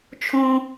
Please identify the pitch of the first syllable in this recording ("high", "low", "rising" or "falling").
high